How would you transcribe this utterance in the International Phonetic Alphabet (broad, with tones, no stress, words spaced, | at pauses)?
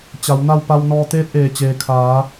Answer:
t͡ɕa˩˧wna˥˨w pa˧wnɔː˧ t̪eː˧˥t̚ʔeː˩t͡ɕeː˩ kʰaː˩˧